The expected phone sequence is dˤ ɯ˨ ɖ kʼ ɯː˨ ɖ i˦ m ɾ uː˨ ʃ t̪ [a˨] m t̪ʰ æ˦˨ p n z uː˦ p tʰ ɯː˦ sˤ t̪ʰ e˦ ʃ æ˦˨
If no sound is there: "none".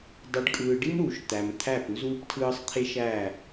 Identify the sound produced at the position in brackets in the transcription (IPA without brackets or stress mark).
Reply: æ˨